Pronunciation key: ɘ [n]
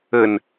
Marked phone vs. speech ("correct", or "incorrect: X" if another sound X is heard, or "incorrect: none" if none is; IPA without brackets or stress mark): correct